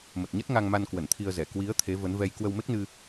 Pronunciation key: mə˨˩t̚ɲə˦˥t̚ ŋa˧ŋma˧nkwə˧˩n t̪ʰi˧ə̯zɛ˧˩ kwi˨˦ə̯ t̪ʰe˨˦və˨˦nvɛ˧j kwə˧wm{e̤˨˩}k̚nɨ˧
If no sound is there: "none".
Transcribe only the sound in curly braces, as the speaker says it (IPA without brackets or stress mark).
e˦˥